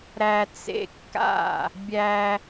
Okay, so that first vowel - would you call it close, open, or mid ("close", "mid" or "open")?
open